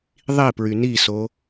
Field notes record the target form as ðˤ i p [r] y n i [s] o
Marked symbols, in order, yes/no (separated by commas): no, yes